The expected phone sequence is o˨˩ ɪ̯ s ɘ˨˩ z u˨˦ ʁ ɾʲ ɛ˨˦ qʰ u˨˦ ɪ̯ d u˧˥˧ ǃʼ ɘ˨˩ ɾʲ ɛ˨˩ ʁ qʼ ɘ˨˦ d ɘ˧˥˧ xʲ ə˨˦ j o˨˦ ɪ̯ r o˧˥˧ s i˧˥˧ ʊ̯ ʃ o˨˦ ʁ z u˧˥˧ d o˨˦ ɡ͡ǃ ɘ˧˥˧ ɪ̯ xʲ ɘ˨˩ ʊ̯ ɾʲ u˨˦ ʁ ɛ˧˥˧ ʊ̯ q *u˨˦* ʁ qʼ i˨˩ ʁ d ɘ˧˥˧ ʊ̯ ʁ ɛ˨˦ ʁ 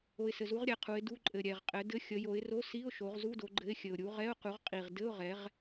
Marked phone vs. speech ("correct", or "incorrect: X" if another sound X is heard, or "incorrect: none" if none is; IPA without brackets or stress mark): correct